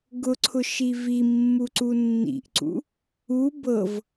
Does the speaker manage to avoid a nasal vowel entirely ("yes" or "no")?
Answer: yes